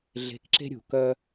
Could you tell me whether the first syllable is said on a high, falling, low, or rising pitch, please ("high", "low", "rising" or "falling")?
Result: rising